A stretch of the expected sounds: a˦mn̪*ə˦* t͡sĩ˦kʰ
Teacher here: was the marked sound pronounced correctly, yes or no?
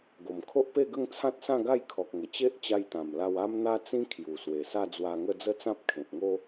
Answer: no